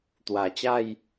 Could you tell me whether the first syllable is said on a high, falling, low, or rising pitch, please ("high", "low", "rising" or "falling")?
low